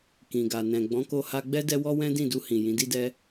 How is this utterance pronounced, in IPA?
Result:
kĩ˨ɡa˨ nɛ̃˨ ɡ͡bɔ̃˨˦ko˧ha˧ɡ͡bɛ˦ dɛ˦wɔ˦wɛ̃˦ dĩ˦˨du˧hĩ˨ jĩ˨˦di˦dɛ˦

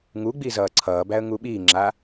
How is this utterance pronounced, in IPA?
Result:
ŋuɡ͡bi zʌːǀʰʌːbæə̯ ŋuɓiːŋ͡ǁa

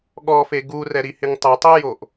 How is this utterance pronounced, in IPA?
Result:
ɠɔfe ɡurɛɾihɪŋ tˤɪtˤijoʔ

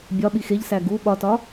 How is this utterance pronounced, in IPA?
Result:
bʲɒɓi xeʎsæ ɡu ɓɒtɒ

